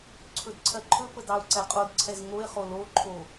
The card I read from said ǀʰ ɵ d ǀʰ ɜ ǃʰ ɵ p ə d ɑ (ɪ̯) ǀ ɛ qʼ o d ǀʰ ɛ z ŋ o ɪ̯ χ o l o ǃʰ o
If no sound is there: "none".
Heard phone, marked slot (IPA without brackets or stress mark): ʊ̯